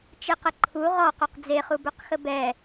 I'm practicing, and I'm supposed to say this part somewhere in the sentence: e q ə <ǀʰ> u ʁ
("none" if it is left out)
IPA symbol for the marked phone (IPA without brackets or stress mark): ǃʰ